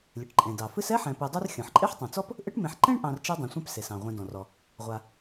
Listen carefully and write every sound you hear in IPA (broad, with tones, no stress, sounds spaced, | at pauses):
lʲ ɨ˩ ʈ ǃʼ ẽ˩ d ɑ˩ f ɨ˥ s ɛ˥ ħ ɛ̃˨ p ɨ˨ dˤ u˥ r xʲ ɔ̃˩ ħ ǃʼ e˥ ħ tˤ ũ˩ t͡s ɔ˥ p | ʔ ɨ˦ ʈ m ẽ˨ ħ ǃ ẽ˥ ɳ ʔ ɑ̃˨ r t͡ʃ e˥ dˤ ẽ˨ sʷ ɛ̃˥ p s e˩ s ɑ̃˩ ʁʷ ẽ˨ d ɔ̃˩ r ɔ˩ | ʁʷ a˩